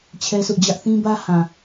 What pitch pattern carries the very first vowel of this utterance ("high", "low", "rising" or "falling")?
high